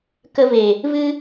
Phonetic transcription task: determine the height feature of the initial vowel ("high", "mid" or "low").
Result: mid